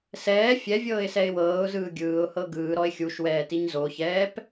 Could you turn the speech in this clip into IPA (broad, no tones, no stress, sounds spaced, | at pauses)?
s ɛː fʲ ɛ vʲ ɤː ɪ̯ s ɛ ɪ̯ w ɤː ʊ̯ z ɯː ɡʲ ɯː ʊ̯ h ɤ ɡ ɯː ɾ ɔ ɪ̯ xʲ u ʃ w ɛː t i ɲ z o ç ɛː p